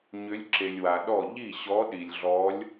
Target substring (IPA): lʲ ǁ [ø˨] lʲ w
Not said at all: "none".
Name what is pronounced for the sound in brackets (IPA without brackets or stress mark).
e˨